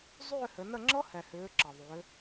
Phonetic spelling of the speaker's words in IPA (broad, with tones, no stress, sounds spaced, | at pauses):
zˤ ʏː˦˨ h ɘ˩˧ n ə˦˨ ŋ͡ǁ ɤ˦˥ h ɛ˩ h ʏː˩˧ ǁ ɤ˩ ðˤ ʏː˩˧